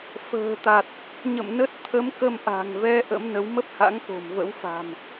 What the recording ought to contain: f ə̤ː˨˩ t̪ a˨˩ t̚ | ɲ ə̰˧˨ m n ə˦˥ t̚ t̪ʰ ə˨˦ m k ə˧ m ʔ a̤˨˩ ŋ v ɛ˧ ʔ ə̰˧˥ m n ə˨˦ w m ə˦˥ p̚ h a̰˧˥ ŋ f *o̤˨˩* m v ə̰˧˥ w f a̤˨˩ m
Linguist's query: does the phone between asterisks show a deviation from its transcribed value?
no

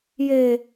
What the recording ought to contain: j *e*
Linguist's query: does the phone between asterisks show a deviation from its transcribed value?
no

